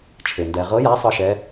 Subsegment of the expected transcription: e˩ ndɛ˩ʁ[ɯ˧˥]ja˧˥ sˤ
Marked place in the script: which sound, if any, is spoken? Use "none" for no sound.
ɤ˧˥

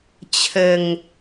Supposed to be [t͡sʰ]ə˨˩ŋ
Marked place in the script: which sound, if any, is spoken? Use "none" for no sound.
t͡ɕʰ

